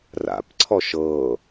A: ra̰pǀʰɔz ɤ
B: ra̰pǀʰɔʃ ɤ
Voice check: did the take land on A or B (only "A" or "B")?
B